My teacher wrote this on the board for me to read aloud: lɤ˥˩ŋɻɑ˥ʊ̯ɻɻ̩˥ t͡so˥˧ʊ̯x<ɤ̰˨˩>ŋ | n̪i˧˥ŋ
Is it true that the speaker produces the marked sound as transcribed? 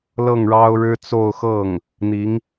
no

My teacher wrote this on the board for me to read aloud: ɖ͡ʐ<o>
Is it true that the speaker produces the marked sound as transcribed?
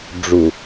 no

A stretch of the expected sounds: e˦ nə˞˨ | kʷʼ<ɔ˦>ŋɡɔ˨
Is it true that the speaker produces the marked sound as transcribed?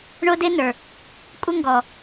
no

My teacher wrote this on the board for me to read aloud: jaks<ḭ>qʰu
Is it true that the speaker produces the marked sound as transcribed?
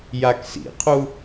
yes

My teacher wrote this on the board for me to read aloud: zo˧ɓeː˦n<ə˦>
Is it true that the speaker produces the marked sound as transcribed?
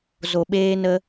yes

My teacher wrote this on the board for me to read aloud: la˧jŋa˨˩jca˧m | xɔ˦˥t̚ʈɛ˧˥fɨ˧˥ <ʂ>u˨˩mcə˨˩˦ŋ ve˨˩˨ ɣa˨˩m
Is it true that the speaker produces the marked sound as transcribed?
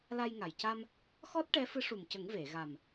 yes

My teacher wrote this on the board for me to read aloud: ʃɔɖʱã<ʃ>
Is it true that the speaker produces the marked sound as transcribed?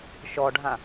no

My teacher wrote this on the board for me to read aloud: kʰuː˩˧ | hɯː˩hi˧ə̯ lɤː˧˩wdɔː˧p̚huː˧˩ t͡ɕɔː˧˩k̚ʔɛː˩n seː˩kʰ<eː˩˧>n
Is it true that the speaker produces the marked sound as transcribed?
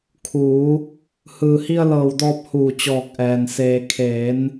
yes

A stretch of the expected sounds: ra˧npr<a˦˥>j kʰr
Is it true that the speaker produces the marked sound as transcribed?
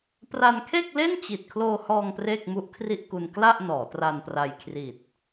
no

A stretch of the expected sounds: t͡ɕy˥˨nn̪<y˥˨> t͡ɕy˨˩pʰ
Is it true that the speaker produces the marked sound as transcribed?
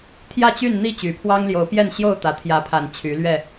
no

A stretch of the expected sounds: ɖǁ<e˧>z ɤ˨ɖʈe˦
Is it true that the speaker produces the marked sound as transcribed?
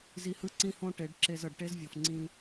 yes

